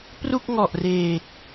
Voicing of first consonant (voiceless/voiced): voiceless